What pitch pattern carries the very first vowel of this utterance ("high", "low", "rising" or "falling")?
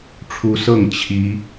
rising